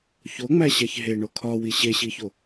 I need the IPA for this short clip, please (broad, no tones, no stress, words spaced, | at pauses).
çoŋ͡mæɕæç ɦeɳo kʰɒwi ɕeɕiço